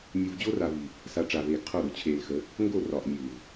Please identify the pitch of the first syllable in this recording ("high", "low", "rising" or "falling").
low